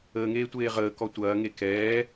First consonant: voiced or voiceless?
voiced